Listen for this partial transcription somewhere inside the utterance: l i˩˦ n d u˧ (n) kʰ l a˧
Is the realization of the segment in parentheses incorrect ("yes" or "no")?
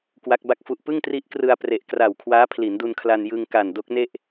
no